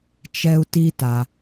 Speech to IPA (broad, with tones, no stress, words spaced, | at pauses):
t͡ʃɛ˧u̯ti˧ta˩